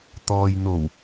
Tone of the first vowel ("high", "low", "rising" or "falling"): low